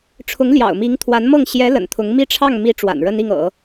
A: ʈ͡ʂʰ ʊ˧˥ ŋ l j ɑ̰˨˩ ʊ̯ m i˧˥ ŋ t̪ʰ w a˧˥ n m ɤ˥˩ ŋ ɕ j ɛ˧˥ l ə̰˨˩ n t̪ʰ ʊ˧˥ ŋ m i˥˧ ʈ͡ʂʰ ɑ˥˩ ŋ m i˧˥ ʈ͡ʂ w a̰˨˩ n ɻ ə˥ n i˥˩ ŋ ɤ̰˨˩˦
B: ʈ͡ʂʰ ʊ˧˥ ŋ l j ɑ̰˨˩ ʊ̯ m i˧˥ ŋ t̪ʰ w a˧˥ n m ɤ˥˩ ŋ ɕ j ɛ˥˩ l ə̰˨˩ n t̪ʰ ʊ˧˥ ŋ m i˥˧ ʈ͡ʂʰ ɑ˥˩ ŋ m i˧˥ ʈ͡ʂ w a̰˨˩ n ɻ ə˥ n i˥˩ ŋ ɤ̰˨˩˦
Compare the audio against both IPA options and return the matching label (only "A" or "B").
A